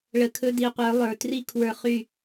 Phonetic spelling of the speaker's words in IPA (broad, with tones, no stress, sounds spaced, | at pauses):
ɭ ə˨ kʰ ɵ˧ d i˨ qʷ ə˞˨˦ lˠ ə˞˨ t r i˦ kʰ w ə˞˧ χ y˦˨